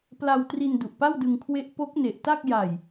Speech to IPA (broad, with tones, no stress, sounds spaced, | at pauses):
p l a˧ w t r i˧ n d u˨˩ ʔ p a˥˩ w d ɯ˧ ŋ kʰ w e˦˥ ʔ p o˦˥ k̚ n e˨˩ ʔ t a˥˩ k̚ j a˨˩ j